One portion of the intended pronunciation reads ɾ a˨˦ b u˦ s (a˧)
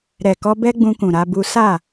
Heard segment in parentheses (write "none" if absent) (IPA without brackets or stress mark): a˦˨